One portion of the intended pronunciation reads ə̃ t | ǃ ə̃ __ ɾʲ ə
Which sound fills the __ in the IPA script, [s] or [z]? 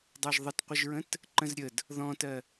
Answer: z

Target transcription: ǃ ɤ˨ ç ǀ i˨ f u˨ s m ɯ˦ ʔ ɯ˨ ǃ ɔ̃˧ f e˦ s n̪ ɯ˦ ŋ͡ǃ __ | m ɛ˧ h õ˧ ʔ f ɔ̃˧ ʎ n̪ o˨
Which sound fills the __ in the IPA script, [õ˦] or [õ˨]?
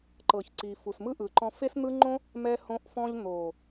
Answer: õ˦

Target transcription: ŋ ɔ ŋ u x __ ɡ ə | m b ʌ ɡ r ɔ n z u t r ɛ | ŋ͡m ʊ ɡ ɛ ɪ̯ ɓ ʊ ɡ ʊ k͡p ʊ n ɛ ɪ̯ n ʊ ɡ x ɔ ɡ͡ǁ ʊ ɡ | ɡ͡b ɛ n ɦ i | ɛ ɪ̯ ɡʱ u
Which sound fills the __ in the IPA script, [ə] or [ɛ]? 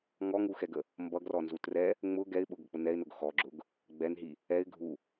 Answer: ɛ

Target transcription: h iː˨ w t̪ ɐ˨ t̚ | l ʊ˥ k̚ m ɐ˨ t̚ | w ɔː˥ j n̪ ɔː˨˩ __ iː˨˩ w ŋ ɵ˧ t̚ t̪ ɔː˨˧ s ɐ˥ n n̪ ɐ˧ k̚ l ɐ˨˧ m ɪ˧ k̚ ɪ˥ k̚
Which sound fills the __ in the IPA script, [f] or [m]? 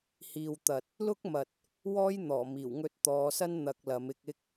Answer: m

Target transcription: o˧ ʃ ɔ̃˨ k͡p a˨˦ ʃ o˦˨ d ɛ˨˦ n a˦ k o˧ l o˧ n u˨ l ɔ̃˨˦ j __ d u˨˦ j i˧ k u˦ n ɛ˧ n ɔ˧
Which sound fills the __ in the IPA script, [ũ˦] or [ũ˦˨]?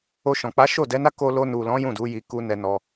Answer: ũ˦˨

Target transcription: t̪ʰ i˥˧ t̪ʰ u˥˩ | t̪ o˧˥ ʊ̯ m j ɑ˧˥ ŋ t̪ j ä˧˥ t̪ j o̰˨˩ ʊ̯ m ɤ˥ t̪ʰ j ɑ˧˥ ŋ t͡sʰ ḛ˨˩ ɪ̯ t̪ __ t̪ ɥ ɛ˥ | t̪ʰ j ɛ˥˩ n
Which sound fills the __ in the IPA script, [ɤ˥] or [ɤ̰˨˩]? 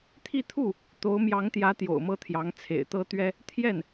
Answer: ɤ˥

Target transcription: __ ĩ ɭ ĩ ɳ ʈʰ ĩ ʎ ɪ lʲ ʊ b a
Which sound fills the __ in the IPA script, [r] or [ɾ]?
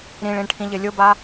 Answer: ɾ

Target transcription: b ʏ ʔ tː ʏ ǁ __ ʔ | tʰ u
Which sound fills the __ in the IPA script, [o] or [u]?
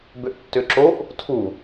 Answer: o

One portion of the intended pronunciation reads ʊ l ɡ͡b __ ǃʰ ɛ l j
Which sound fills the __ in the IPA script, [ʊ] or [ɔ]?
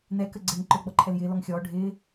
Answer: ɔ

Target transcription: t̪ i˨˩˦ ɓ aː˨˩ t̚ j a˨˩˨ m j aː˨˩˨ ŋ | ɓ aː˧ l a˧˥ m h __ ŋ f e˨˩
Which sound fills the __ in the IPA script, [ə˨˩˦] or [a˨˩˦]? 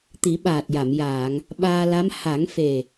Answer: a˨˩˦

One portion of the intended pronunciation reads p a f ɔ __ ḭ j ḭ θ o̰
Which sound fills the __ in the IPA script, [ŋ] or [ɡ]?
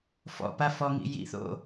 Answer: ŋ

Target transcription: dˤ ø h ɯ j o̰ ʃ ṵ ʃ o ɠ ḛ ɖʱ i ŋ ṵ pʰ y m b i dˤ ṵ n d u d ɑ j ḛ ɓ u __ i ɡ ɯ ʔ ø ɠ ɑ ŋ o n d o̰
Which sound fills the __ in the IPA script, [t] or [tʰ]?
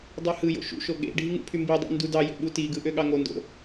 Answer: t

